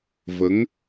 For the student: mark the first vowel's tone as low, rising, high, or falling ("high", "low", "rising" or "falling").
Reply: rising